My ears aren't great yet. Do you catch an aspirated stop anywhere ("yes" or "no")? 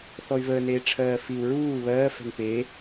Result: yes